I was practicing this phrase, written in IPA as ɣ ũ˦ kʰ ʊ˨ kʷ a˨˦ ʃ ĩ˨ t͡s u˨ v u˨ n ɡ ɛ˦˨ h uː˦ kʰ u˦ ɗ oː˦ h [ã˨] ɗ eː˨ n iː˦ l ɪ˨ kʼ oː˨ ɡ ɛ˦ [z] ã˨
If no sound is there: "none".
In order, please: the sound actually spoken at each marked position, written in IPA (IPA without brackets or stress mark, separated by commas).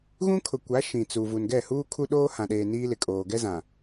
ã˨, z